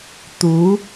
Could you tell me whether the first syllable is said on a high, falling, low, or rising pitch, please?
rising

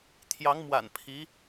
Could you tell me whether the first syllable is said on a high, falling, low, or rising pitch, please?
rising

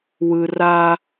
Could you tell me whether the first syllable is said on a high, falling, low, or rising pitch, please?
low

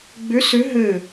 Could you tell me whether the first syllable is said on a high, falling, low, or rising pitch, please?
rising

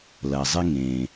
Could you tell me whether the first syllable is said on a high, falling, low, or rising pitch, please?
low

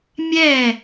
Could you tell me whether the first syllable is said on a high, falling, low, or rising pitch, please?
falling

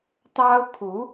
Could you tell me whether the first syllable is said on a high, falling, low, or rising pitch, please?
high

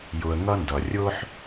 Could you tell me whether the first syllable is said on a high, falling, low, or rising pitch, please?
low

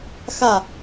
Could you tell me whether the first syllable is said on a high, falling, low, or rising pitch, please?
falling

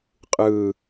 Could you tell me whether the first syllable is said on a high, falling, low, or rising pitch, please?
low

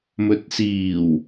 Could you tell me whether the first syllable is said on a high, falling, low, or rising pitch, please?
low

